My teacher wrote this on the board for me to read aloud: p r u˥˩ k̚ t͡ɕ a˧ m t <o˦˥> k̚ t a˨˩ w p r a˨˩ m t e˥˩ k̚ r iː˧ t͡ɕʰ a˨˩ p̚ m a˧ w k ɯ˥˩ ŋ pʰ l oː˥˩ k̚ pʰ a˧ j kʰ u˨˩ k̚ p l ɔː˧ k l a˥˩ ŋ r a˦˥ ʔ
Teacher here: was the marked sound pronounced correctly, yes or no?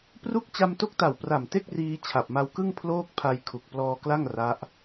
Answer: yes